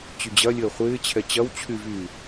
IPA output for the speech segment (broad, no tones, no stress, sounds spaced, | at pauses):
t͡ɕ y d͡ʑ ɐ lʲ əː χʷ ɪː t͡ɕʰ ɛ t͡ɕ ɐ w t͡ɕʰ y v yː